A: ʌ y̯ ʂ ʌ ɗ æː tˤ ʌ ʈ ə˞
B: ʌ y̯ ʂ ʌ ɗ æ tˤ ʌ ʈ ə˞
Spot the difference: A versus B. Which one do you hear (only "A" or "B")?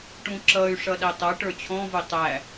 B